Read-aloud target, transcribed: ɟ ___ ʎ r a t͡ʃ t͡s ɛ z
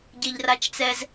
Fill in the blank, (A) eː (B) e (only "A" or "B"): B